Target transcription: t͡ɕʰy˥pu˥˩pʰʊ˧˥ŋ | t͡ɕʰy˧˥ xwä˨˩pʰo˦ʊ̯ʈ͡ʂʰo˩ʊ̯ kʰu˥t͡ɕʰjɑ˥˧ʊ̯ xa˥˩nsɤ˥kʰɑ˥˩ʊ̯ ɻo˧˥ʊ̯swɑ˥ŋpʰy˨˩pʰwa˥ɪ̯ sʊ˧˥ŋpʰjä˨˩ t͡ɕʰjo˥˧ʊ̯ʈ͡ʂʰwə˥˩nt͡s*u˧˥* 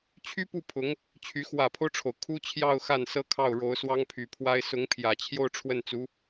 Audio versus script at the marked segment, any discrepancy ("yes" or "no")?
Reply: no